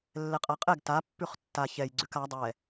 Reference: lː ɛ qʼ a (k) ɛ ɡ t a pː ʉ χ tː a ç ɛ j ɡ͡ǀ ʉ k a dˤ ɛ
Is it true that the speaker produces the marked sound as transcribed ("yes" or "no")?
no